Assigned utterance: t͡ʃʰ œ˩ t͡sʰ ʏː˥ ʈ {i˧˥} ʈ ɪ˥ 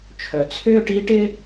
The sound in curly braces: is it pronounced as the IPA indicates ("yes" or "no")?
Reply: yes